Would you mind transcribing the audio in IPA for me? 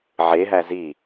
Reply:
ʕ e ɦ æ z i

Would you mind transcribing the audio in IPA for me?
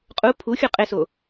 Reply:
qʼ u pʰ u xʲ u qʼ e s o

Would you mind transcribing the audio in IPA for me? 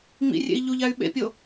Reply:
ŋ͡m ḭ rʲ ḛ i̯ ʎ u ʎ a y̯ ɓ ḛ pʲ o

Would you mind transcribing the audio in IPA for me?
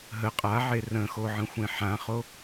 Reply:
ɦ ə qʼ a ʕ e r ə̃ x o ʕ ə̃ xʷ ẽ ħ ã χ o

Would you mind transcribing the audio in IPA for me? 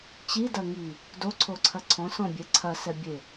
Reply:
t͡ɕ i d ɐ ŋ i | d o ǀʰ o ǀʰ ɐ ǀʰ ɔ̃ s ɔ̃ bʲ ɛ ǀʰ ɐ s ɛ bʲ e

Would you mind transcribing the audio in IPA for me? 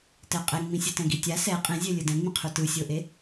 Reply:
t ɛ qʼ ɛ ŋ͡m ĩ sʲ ʌ t ɛ̃ ɡ i tʲ a s ɛ qʼ ẽ zʲ ɛ lʲ ɯ d ɛ̃ ŋ͡m ĩ qʰ u t ɯ sʲ o ʔ e

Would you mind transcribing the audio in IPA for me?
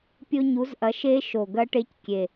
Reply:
pʲ o˦˥ ɲ u˨˥ z ʔ ɐ˨˥ ʃ e˦˥ ʃ o˨˩ ɡ ɐ˦˥ ʈ e˦˥ c kʲ e˨˩

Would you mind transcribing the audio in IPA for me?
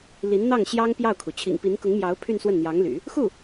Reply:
l i˧˥ n n̪ ɑ˥˩ ŋ ɕ j ɑ˥ ŋ p j ɑ˥˩ ʊ̯ kʰ u˩ t͡ɕʰ ḭ˨˩ ŋ p i˧˥ n k ʊ˧˥ ŋ m j ɑ˧˥ ʊ̯ pʰ y˥˧ n s w ə˥˩ n n̪ j ɑ˧˥ ŋ l y̰˨˩˦ | x u˥˩

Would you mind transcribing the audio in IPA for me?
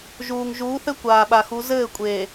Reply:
ʒ uː˨ ŋ ʒ uː˨˦ θ ɘ˦ kʷ aː˨ ɓ a˨ x u˨˦ z ɘː˦˨ kʷʼ eː˨

